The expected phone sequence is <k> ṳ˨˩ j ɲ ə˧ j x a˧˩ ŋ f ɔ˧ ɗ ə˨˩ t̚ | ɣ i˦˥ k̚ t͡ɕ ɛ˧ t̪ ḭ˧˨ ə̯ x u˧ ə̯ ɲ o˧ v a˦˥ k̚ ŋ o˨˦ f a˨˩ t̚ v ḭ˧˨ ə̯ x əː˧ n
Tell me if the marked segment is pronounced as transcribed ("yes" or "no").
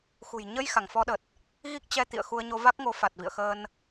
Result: no